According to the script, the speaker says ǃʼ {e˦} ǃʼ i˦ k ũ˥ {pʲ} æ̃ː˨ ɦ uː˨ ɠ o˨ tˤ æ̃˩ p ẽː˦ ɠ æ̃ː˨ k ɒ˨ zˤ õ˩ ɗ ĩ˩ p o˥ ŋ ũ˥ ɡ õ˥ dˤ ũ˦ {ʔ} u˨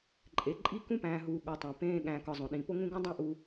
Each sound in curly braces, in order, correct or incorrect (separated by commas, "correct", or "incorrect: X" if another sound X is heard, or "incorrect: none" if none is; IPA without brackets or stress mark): incorrect: e˩, incorrect: p, correct